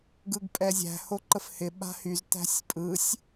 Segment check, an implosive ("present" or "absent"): present